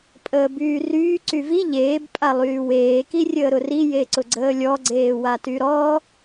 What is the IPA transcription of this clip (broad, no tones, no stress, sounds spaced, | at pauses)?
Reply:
pʼ əː b yː r yː ǀ y v i ʎ eː b pʼ a lˠ yː w eː k i rʲ əː ɾ ʊ r i j e ǀ ʊ ɡ͡ǀ əː lʲ ɔ ɡ͡ǀ eː w a t y ɾ ɔ